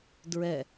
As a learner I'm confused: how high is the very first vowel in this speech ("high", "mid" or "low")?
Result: mid